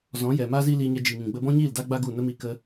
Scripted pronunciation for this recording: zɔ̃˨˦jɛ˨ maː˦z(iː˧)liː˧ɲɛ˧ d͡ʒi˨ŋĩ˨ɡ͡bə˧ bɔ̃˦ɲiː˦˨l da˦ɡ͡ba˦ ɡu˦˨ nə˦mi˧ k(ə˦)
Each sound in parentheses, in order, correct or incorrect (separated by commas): incorrect, correct